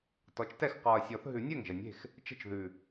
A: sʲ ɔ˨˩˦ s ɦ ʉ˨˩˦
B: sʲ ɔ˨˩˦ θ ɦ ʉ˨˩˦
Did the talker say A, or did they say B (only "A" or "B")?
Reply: B